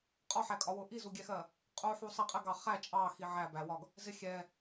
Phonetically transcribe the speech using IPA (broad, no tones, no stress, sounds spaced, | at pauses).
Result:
qʼ ɒ ħ æ kʼ ɒ w ʊ ʔ i z u ɡʲ ɛ x ɜ | qʼ u ħ u sˤ i qʼ ɛ ɡ ɑ χ æ t͡ʃʼ ɑ x i ʕ æ b æ w ɒ ɡ | z ɪ xʲ ɛ